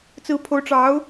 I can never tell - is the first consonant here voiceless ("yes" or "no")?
yes